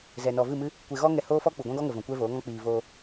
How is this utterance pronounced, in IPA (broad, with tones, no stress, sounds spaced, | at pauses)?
z ɛ˨ n ɔ˨ v ɨ˦˨ m ɨ˦ | kʷ e˧ ɣ ɔ˦ ŋ ɛ˧ h oː˦ f ɔ˦ k͡p u˨ ɡʷ ã˦ ɡ ɔ˦ ŋ ə˨ v ɔ̃˨ kʷ ɛ˦ v oː˨˦ ŋ ɔ̃˦ k͡p iː˨ v oː˧